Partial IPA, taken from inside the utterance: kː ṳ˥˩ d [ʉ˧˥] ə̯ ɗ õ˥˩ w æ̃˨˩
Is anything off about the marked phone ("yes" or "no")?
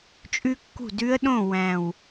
no